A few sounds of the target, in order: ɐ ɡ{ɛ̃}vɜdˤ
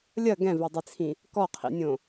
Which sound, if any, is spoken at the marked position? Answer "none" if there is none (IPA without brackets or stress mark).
ɛ̃